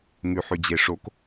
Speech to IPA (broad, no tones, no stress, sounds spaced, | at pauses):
ŋ ʉ ħ ʉ d͡ʑ e ʂ o k